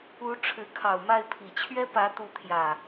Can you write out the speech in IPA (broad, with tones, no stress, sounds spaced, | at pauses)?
u˨˦ ʈ͡ʂʰ ɻ̩˨˦ kʰ ɑ˨˩ ʊ̯ m a˥˨ ɪ̯ pʰ i˨˩ t͡ɕʰ ɥ ɛ˦ p ä˨˦ t̪ u˨˦ t̪ʰ j ä˨˩